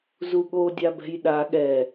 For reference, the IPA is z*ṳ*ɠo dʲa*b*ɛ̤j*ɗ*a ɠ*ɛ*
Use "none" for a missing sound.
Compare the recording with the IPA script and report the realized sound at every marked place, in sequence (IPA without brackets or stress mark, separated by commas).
u, b, ɗ, ɛ